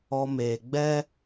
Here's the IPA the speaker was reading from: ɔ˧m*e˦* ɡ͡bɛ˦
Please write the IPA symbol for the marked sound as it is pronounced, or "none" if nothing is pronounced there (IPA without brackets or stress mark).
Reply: e˨